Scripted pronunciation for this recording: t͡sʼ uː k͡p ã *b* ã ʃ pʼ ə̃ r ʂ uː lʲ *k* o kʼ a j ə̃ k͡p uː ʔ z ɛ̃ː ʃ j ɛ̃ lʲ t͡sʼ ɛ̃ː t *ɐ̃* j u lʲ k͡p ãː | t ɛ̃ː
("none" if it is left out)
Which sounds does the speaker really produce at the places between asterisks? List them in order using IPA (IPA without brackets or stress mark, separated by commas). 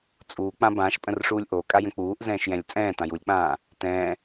b, ʔ, ã